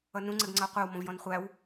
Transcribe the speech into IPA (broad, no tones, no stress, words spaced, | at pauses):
ʌnũ ŋ͡ǀɛɡŋ͡ǀʌo̯qʷɛw mɔ̃vjɔ̃nχʷæw